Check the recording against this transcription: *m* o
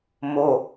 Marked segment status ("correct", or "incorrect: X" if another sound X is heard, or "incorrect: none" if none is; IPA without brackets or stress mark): correct